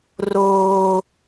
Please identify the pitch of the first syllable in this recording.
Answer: high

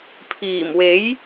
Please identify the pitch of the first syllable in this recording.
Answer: low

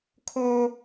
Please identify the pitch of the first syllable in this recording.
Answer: high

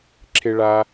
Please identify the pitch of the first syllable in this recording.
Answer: high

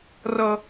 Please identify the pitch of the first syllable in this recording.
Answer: low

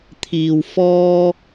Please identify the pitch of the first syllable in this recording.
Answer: low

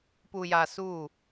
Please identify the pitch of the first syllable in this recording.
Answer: low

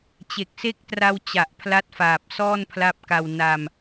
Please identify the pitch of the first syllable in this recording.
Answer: low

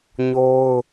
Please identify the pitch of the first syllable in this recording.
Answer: high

